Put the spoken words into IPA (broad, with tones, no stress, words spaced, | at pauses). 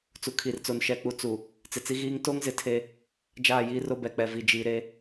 t͡su˨kʰi˨rt͡so˨n ʃɛ˨k͡pu˨ t͡su˨ | t͡sɪ˨t͡si˦ɣiː˦ŋ to˦ŋzɪ˨ tʰe˦ | d͡ʒaː˦˨jiː˦ro˦ bɛ˨k͡pɛ˨vi˨ d͡ʒiː˨ɾe˦